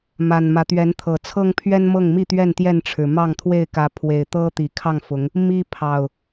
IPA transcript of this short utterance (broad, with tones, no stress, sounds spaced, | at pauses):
m a˨˩ n m ä˨˦ t̪ ɥ ɛ˨˦ n t̪ʰ ɤ˨˩ t͡sʰ ɤ˦ ŋ pʰ ɥ ɛ˦ n m ɤ˥˨ ŋ m i˥˨ t̪ ɥ ɛ˥˨ n t̪ j ɛ˥˨ n ʈ͡ʂʰ ɻ̩˨˩ m ɑ˥˨ ŋ t̪ʰ w e˥˨ ɪ̯ k ä˨˦ pʰ w e˨˩ ɪ̯ t̪ ɤ˦ t̪ i˨˩ kʰ ɑ˥˨ ŋ f ʊ˨˦ ŋ | m i˦ pʰ ɑ˨˩ ʊ̯